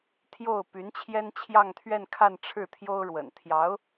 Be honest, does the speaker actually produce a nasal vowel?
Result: no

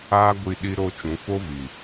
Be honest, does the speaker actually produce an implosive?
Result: yes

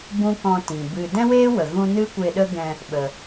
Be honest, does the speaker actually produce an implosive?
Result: yes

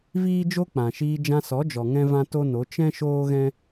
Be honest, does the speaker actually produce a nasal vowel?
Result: yes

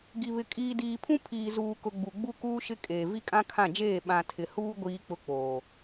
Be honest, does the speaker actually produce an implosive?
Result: yes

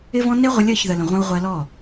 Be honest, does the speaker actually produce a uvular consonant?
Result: yes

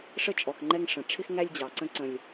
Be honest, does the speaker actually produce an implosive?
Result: no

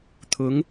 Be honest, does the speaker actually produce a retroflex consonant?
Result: no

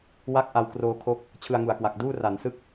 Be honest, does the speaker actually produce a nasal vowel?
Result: no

